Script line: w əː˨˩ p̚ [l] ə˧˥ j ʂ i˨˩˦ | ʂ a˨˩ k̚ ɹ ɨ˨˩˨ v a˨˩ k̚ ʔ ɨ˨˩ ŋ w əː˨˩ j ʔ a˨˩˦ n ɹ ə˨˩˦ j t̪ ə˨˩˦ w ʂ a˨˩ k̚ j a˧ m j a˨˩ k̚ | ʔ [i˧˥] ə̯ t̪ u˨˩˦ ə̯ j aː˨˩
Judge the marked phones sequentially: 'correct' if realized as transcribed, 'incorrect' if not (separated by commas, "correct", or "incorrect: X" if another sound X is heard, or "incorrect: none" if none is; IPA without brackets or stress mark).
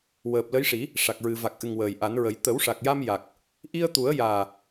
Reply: correct, incorrect: i˧